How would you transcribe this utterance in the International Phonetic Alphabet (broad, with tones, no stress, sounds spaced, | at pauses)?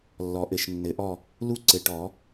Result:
lː ɔ˨˩˦ ʔ ɘ˨˩˦ ʃ nː ɘ˨˩˦ ʔ ɔ˥˨ | l u˥˨ ǀ ɘ˨˩˦ ʈ ɔ˨˩˦